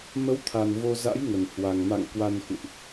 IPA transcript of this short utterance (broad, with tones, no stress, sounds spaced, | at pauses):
m ə˨˦ w t̪ʰ a˨˩ n v o˧ z a̰˧˥ j ŋ ə˨˩ n h w a˨˩ ŋ m a̰˧˨ ŋ k w a˧ n x ṵ˧˨ ʔ